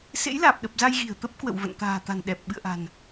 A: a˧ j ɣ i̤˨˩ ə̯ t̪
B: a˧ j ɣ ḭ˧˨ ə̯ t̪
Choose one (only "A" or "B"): A